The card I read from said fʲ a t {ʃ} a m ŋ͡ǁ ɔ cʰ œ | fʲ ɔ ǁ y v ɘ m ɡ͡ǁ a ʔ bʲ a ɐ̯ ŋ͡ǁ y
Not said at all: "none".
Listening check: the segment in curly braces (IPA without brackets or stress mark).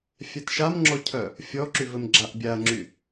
ʃ